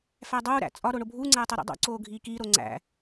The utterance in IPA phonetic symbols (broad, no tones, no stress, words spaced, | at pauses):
fædˤuːɾæ̰ t͡sʼɒ ɾoɳobʱuːŋ͡ǀæː tˤuɾḭdˤo̰ǀoː ɡʱiːkiɾo ŋ͡ǀæ̰